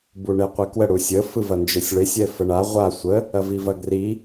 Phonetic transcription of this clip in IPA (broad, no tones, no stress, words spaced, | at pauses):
buɳeqʷikwə ɽusʲə fɯvɐnd͡ʒesʲɭesʲ ɛfəɳa ʁʷa sʷə | ɐvivɐɡri